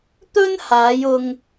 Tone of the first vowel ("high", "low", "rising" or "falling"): high